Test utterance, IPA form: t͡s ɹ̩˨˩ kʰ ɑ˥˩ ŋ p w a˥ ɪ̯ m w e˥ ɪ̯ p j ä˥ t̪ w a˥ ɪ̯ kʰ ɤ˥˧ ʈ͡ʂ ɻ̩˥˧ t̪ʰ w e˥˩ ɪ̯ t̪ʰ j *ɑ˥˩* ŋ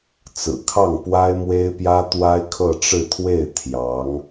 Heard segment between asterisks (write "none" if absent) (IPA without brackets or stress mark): ɑ˧˥